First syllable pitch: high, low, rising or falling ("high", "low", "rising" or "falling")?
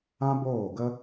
high